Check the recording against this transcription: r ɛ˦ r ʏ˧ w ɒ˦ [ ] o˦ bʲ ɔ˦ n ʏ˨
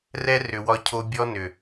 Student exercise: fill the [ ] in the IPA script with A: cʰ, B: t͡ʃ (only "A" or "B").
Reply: A